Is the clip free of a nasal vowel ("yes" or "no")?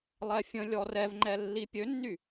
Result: no